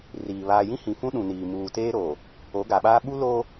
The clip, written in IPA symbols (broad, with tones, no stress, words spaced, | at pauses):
riː˨ βaː˨jĩ˦ hĩ˨fũ˦ ɗũ˨niː˨ muː˨teː˦ɾoː˨ | o˨˦ɡa˨ɓaː˦ ɓu˦loː˦